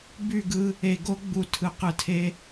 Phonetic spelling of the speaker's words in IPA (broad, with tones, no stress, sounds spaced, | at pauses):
b y˦˨ ɡ ɯ˦ | e˨ ɡ o˦ ɡ͡b u˨ tʰ ɯ˨ q ɯ˨ tʰ e˦